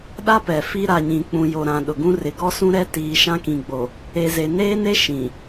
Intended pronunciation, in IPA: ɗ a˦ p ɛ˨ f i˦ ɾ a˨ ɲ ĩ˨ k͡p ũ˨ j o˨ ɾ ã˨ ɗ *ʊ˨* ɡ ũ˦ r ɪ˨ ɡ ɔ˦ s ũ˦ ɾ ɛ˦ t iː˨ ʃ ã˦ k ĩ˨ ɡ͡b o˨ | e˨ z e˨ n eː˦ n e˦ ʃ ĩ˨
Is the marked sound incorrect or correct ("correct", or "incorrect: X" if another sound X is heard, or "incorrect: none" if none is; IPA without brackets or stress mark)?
correct